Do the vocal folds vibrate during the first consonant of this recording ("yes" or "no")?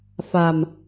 no